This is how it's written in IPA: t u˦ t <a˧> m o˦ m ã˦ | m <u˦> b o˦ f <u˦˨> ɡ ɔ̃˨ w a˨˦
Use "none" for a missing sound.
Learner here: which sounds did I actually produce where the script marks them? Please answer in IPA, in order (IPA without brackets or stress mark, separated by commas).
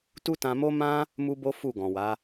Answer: ã˧, u˦, u˦˨